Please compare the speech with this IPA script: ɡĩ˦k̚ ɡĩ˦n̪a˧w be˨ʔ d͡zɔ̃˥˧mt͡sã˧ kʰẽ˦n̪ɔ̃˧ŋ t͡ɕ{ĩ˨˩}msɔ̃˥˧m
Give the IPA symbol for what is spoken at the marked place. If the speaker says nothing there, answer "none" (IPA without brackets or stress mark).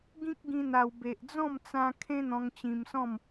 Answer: ĩ˧